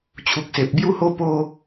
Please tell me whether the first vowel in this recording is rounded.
yes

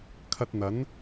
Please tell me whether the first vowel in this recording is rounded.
no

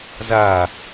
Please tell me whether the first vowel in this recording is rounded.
no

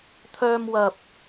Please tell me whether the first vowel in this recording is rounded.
yes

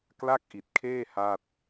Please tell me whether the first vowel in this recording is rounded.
no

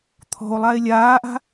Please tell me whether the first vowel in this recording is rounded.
yes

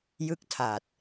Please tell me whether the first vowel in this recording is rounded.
no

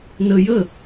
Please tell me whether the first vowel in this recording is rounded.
no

